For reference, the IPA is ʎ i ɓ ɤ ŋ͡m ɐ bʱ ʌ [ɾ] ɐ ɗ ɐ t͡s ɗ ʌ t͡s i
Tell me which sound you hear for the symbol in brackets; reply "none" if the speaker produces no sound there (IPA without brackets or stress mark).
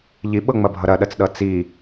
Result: ɾ